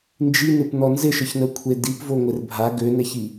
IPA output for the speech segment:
n d͡ʒ i n ɪ p n ɔ n z ɪ ʃ ə ç n ə kʷʰ e d i p v o ŋʷ e r bʱ a ɡ ø n ɛ ç i

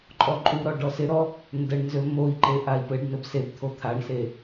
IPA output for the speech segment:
ǃʼ ɔ ǃʼ u ɾ ɔ ɖ ɔ s ɪ ɾ ɔ | n d ə ɳ n z ø m o i̯ ǃ e ʔ a i̯ p ɘ ɖ n ɘ b s e b t̪ʰ o t̪ʰ a ɳ s e

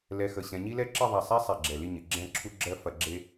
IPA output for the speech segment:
l ɛ˧ x ə˧˩ ɕ ɛ̃˧ ɲ i˥ l ɛ˥ ǁ ɪ˥˧ ðˤ ɛ˧˩ sˤ ɛ˥ sˤ i˧˩ ɡ͡ǁ ɛ˧˩ l i˥˧ ɲ ɪ˩˧ ɡ͡ǁ ɛ̃˥˧ ǁʰ u˥ ɡ͡ǁ ɜ˥ f ɐ˧ ɡ͡ǁ e˥

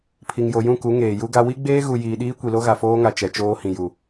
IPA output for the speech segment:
pʰ i˨ ŋ j o˨ j ũ˦˨ k u˨˦ ŋ eː˨ j u˦ ɡ a˦ w i˦ ɡ͡b eː˦ ɣ u˨ j iː˨ ɗ iː˦ kʷ i˨ l o˦ ɣ a˨ f oː˦ ŋ a˨ t͡ʃ ɛ˨ t͡ʃ oː˦ h ĩ˨ j u˨

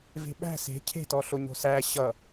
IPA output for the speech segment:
v e̤ ɓ æ̤ s e̤ cʰ e̤ t ɔ ɬ o ɲ o̤ s æ ɕ ʌ

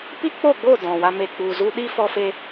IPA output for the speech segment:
p i˦ k͡p o˦˨ ɡ͡b o˦˨ d ɔ̃˨ w a˧ m e˨ k͡p u˨ z u˧ ɗ i˦ f ɔ˧ f e˧

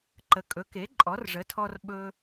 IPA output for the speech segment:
ǃ ə˩˥ kʼ ɵ˩˥ k e˩˥ ǃʼ ɔ˩˥ r ʐ ə˩˥ tʰ ɔ˧ r ɓ ɵ˧

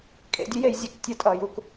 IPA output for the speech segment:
kʼ ḛ˧ dʲ ʉ˦ j e˧ j zʲ e˧ k tʲ ə˧ tʼ ʌ˨ j u˨ k

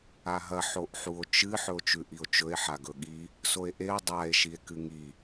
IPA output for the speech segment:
a ɦ ɐ ħ o ʔ ħ u o̯ t͡ʃ ɨ ħ ɵ o̯ t͡ʃ ʉ ʔ i o̯ t͡ʃ ɵ e̯ ħ a ɡ ɵ ɠ i | s o e̯ ʔ e o̯ dˤ a e̯ ʃ i e̯ k ɨ ŋ i

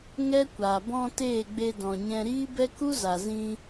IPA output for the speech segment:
ŋ ɛ˦ kʷ aː˨ b ɔ̃˧ t eː˦˨ ɡ͡b e˧ d ɔ̃˨ ɲ ɛ̃˧ ɾ iː˦ b ɛ˦ k u˦ z a˨ z ĩ˧

